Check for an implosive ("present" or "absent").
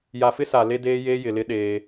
present